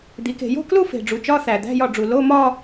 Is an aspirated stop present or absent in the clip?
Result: absent